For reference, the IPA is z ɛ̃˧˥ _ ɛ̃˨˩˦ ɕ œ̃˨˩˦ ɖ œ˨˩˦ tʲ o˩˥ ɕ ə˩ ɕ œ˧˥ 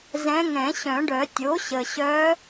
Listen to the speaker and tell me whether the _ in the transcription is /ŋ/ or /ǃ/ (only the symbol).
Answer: ŋ